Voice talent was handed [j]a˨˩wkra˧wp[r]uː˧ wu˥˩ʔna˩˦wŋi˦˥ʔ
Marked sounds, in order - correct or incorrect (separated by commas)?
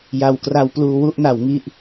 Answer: correct, incorrect